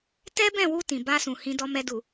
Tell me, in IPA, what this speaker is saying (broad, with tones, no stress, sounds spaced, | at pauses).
t ɛ˦ b ɛ̃˦˨ w u˧ t ĩ˨ b a˧ s ũ˨ h ĩ˧ d ɔ˧ m ɛ˧ d u˨